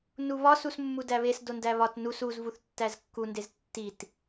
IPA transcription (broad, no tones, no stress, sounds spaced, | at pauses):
n u β ɒ s u s mː u d æ β e s d o n d æ β ɒ t n u s u z v u θ tː æ z kː u n d e z tː i t